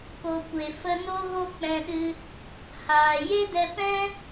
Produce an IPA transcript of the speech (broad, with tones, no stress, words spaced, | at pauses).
ko˨kʷe˨fə˧ no˦ɣo˦k͡pɛ̃˧ɗɨ˧ | haː˨ je˦dɛ˧pɛ̃˦